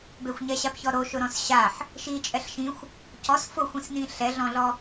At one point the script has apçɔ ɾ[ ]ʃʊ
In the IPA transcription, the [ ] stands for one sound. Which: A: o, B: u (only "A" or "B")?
A